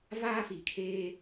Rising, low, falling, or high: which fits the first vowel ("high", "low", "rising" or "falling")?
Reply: high